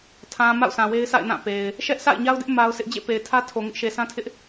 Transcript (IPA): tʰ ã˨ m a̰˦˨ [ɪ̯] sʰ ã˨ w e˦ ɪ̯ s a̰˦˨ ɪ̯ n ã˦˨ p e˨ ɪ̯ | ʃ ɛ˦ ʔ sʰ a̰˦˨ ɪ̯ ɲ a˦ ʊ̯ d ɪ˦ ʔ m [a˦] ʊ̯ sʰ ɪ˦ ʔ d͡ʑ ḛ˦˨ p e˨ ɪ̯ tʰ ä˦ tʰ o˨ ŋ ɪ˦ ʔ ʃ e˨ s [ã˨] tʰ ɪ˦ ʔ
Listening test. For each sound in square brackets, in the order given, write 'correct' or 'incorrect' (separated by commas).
incorrect, correct, incorrect